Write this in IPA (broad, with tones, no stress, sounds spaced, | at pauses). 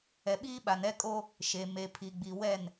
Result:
ɛ˨ ɓ iː˦ ɓ a˨ n ɛ˦ kʼ o˦ | ʃ e˨ m e˨ pʰ i˨ ɡ͡b i˨ w ɛ˦˨ n